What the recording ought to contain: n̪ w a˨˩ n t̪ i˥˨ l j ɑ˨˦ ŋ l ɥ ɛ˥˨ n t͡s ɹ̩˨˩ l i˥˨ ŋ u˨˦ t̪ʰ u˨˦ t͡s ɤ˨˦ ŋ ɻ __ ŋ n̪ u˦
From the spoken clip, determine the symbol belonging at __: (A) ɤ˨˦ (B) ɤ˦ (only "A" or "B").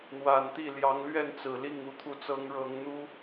A